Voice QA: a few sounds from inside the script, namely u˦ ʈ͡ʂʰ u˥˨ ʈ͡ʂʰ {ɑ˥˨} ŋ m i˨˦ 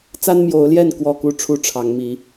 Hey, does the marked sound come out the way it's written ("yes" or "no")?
no